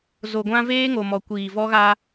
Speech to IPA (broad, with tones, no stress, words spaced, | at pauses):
zo˨ɡʷã˦ veː˦ŋo˨mɔ˨kʷiː˨ vɔ˦ɣa˦